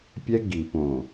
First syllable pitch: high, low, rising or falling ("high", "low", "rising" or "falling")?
high